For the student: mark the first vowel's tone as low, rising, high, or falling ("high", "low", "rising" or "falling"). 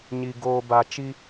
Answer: low